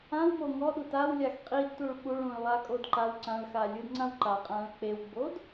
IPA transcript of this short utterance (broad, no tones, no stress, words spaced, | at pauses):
ãwmo ŋɔɗu tawlʲax qʼidtuɭ ɓuɭũɭlˠakʼod ǃaw ǀãɭxalʲɯdŋ͡ǀãw ǃaqʼãɭ k͡pewɡ͡bod